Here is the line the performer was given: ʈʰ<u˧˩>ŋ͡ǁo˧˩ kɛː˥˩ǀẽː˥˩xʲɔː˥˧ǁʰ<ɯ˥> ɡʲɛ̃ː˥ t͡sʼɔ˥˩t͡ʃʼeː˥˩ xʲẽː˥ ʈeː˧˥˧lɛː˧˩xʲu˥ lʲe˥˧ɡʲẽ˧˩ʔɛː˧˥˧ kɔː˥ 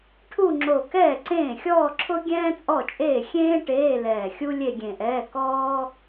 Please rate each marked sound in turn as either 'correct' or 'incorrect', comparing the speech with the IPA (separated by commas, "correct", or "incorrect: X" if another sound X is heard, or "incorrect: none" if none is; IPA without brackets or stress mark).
incorrect: u˥˧, incorrect: ʊ˥